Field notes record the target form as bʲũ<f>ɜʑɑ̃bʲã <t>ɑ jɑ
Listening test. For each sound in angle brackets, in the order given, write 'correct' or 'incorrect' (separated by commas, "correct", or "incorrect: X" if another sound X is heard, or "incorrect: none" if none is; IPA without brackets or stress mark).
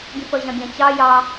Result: correct, incorrect: t͡ɕ